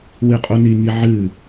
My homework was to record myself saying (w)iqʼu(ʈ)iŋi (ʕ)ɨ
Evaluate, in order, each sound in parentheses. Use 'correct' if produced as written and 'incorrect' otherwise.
correct, incorrect: n, correct

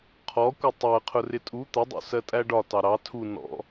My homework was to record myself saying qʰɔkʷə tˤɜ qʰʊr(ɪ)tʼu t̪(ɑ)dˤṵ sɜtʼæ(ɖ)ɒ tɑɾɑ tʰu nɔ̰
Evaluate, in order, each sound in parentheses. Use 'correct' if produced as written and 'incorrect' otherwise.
correct, incorrect: ə, correct

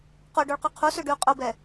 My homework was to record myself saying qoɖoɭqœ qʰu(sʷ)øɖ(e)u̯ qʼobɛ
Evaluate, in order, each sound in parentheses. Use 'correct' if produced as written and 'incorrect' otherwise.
incorrect: s, incorrect: y

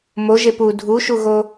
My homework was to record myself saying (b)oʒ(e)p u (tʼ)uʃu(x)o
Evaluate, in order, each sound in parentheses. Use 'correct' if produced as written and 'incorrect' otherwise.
incorrect: m, correct, incorrect: dʱ, incorrect: ɣ

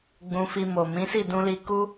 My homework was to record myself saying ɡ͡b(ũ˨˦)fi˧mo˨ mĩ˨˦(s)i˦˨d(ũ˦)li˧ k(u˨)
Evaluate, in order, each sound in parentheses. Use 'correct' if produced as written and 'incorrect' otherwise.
incorrect: ũ˧, correct, incorrect: ũ˧, incorrect: u˦

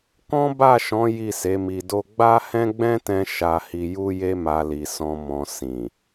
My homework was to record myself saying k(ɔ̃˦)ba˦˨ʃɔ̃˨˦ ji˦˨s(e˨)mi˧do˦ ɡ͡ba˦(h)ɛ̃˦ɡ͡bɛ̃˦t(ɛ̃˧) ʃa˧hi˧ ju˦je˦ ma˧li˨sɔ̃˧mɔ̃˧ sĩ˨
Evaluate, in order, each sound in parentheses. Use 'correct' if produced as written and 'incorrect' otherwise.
correct, incorrect: e˨˦, correct, correct

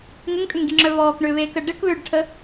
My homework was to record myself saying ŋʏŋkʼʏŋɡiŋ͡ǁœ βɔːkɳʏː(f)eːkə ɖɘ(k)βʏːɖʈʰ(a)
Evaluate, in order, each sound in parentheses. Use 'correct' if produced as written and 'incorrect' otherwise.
incorrect: β, correct, incorrect: ə

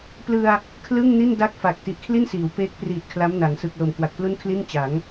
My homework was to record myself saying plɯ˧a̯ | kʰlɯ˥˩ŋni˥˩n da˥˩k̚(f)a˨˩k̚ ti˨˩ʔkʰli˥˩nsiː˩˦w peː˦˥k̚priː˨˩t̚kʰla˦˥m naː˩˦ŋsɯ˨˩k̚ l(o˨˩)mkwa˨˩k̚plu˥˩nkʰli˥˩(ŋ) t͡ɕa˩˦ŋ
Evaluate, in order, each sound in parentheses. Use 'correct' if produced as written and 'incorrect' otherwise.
correct, correct, incorrect: n

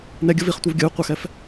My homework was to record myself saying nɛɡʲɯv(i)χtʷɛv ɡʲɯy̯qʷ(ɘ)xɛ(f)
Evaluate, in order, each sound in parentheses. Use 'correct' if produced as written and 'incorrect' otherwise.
correct, incorrect: e, correct

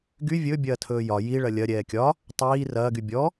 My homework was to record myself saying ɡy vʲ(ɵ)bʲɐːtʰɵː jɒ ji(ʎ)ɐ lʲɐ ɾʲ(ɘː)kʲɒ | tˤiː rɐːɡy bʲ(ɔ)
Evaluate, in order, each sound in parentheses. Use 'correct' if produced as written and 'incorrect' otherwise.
correct, incorrect: ɭ, incorrect: ɛː, correct

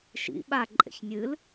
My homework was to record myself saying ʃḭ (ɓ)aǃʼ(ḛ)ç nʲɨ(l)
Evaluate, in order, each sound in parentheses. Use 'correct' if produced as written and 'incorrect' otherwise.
correct, correct, correct

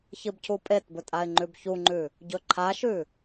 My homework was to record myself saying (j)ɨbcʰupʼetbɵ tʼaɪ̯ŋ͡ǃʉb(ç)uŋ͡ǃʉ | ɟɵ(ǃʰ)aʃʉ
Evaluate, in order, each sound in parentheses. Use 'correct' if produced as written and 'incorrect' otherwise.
incorrect: ç, correct, correct

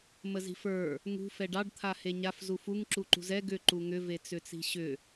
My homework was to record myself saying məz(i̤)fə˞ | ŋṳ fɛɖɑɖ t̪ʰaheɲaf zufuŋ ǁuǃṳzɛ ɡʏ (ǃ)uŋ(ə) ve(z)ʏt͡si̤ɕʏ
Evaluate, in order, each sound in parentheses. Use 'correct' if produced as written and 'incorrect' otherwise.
correct, correct, incorrect: ʏ, incorrect: t͡s

